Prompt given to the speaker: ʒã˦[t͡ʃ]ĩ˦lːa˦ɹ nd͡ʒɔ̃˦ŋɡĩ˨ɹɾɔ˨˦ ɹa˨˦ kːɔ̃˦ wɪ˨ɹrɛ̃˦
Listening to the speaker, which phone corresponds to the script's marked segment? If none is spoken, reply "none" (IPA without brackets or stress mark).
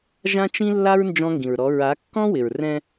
t͡ʃ